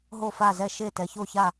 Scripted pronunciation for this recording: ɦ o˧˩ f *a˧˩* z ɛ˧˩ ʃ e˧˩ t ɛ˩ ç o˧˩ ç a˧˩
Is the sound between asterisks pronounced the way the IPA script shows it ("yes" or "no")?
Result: yes